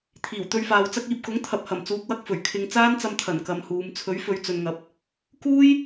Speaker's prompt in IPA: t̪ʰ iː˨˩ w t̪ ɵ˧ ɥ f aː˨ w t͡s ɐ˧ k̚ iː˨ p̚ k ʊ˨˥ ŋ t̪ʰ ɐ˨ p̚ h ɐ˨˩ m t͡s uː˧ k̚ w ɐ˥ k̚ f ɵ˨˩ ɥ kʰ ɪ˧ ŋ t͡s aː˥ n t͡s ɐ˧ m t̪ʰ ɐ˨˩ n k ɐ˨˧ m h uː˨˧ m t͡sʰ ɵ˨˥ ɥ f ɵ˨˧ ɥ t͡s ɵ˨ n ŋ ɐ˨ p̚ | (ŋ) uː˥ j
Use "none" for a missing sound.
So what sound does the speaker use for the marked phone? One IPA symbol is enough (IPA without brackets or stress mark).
k